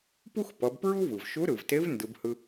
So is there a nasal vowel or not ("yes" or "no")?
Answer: no